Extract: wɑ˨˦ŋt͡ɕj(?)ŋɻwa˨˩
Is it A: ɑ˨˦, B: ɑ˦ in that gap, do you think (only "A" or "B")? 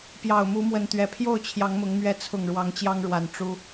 B